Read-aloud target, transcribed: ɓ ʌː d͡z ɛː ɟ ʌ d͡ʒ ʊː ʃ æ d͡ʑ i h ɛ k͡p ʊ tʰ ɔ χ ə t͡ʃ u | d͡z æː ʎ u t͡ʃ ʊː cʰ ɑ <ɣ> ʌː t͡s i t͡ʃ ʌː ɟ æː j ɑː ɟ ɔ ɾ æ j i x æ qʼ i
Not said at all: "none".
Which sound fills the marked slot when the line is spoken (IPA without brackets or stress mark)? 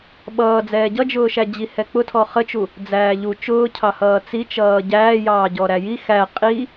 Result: h